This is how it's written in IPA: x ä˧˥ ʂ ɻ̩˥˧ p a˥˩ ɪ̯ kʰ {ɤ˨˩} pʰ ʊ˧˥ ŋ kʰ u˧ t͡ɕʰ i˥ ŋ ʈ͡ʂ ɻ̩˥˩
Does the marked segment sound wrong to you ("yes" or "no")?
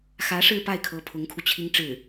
yes